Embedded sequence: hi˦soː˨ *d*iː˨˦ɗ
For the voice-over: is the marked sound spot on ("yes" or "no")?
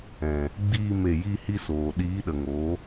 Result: no